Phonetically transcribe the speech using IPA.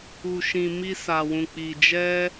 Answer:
u˨ʃĩ˨ mi˧sa˨wũ˨ k͡pi˨ d͡ʒɛ˧

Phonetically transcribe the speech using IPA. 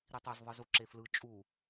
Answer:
ɾitˤɛz ðˤɯzuǁeflɯ t͡ʃʼu

